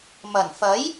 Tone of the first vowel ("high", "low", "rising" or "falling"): low